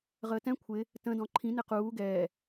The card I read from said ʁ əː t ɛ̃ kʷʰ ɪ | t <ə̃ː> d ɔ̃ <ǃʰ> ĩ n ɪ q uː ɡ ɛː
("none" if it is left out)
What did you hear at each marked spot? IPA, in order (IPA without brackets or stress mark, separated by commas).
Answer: ə̃, ǃʰ